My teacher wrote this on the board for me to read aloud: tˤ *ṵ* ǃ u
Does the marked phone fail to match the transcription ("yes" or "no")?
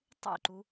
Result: no